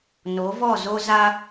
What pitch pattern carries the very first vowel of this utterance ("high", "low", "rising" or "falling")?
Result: rising